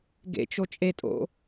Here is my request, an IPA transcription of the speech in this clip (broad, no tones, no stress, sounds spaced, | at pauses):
ɡ ḛ t͡ʃ o t͡ʃʼ e tʼ o̰